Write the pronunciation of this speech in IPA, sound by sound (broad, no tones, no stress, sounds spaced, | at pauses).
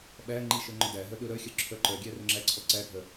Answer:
ɓ æ ŋ͡ǃ i ʃ œ ŋ͡ǃ ɵ d æ ɦ œ ɗ ɵ ɾ œ xʲ œ ǁʰ œ ǃ œ ɡʲ æ r ɵ ŋ͡ǁ æ ǀʰ ɔ ǀ æ ɡʱ œ